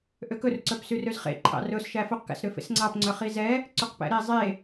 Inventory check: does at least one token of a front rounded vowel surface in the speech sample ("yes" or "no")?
yes